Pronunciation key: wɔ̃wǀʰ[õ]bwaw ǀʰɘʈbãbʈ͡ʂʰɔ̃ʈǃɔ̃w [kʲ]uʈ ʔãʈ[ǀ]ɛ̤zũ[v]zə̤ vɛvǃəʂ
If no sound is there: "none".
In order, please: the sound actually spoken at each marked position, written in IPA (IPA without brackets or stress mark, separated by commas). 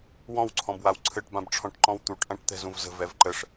ɔ̃, t̪, t̪, v